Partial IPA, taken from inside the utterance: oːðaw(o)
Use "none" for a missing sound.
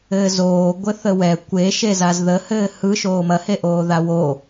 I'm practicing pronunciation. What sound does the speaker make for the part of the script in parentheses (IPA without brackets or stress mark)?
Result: o